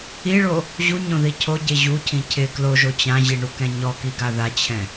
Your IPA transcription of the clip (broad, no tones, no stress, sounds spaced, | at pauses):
i ɭ o | ʑ u ɲ õ ð i cʰ o ɟ e ʑ u cʰ ĩ cʰ ɪ k l o ʒ o t͡ɕ ã ʑ i ɳ u k ɛ̃ ɲ ɔ k i ɡ a ð a t͡ɕʰ ɛ̃